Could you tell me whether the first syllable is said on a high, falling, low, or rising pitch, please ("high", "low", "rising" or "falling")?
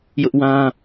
high